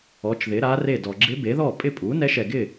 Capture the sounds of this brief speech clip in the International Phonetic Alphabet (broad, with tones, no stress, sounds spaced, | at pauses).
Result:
ɔ˩˥ t͡ʃ ð ɪ˩˥ ɾ a˧˥ r e˥˩ d ɔ˨ ɡ͡ǁ ɪ˧˥ b e˩˥ ð ɔ˥˩ pʼ ɪ˥˩ pʼ u˩˥ n ɛ˧˥ ʃ ɛ˨ ɡ ɪ˥˩